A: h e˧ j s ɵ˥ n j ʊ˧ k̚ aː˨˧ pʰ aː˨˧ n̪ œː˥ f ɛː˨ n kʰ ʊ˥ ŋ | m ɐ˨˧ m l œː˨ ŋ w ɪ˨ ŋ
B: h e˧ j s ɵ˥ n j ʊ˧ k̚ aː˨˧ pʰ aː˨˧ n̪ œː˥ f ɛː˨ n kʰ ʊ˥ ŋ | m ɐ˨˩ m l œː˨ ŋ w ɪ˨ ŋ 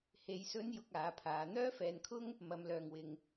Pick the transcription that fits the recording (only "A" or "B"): A